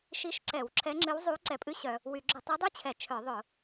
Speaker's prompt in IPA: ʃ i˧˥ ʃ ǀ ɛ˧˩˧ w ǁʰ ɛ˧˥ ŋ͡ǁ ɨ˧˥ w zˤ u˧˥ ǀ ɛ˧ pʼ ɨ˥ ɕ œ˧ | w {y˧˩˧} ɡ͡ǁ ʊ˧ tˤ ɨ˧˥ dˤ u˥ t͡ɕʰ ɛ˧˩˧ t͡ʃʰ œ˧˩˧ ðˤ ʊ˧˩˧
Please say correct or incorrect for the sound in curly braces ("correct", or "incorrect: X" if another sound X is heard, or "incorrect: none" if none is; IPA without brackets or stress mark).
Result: correct